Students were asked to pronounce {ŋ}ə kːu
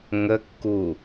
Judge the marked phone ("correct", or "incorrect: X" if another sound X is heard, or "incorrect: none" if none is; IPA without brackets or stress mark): correct